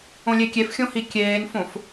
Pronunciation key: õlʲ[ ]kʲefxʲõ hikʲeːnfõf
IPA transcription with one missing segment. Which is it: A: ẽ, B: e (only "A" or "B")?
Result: B